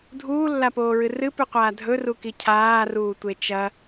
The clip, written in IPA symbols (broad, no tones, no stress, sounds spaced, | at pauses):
dʱ uː lː a p oː ɹ ɨ r ɨ p ʉ qʷ aː dʱ ɵ r u k i cʰ aː r uː tʷ e t͡ʃ ɐ